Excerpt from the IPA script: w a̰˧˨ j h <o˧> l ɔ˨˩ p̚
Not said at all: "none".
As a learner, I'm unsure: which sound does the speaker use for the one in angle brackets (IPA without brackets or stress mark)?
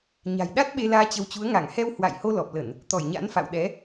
o˧